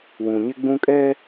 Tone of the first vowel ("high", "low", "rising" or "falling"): low